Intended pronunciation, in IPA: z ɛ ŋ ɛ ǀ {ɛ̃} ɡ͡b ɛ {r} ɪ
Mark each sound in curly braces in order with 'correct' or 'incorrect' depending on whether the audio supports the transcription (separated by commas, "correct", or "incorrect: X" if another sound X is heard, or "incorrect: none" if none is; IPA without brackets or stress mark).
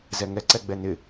incorrect: ɛ, incorrect: n